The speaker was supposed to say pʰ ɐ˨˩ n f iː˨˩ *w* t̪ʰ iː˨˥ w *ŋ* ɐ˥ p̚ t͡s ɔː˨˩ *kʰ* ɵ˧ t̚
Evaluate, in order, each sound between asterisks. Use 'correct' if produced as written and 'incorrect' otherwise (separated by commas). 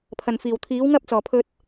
correct, correct, incorrect